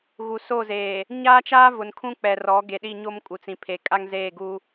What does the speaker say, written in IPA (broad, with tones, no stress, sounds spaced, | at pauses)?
ɣ u˨ s o˦˨ z eː˨ | ɲ aː˦ t͡ʃ aː˦ v ʊ˨ n kʰ ũ˦ k͡p ɛ˨ r ɔ˨˦ ɡ e˨ ɗ i˦˨ ɲ o˦ m kʼ u˨ t͡s ĩ˨ pʰ e˨ kʼ a˦ ŋ z eː˦˨ ɡ u˦